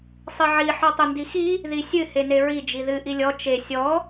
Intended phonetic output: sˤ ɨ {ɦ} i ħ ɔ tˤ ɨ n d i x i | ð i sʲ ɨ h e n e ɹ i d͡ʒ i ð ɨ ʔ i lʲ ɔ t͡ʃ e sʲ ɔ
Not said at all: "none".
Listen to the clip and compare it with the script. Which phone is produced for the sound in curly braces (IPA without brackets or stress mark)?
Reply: ʕ